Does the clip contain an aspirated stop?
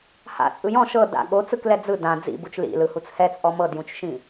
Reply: no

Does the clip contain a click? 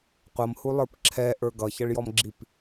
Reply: yes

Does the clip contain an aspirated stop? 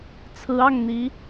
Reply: yes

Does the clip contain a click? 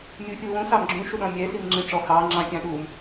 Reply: yes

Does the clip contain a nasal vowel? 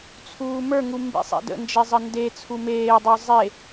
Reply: no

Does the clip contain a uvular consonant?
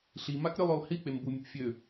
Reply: no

